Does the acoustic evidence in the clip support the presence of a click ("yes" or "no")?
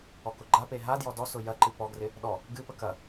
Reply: yes